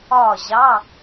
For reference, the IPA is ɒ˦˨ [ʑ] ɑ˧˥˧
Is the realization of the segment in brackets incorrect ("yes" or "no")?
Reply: no